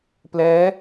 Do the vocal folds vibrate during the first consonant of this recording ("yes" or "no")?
no